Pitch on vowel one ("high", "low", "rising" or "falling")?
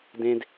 high